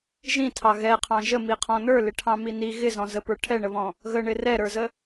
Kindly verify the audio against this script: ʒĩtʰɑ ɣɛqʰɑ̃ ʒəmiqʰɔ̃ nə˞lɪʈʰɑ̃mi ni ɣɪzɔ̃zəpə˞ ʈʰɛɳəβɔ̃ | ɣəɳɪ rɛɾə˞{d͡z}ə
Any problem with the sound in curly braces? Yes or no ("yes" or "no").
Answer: yes